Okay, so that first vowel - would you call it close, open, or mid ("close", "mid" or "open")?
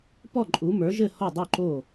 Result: mid